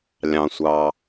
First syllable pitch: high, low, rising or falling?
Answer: low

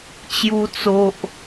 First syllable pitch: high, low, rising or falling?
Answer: high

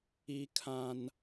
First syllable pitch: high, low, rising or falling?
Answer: high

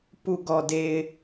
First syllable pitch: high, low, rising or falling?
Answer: low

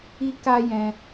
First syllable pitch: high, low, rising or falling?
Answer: high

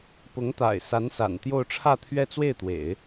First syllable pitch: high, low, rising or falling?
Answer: rising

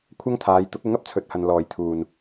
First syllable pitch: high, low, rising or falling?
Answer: high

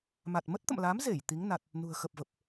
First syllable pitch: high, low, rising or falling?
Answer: low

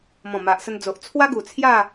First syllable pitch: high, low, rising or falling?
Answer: low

